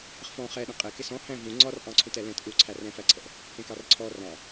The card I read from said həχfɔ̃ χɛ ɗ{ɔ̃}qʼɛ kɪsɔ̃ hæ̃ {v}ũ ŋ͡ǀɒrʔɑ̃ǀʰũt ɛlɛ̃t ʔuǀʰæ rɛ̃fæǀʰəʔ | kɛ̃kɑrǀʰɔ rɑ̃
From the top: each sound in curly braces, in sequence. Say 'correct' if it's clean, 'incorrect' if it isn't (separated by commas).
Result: incorrect, correct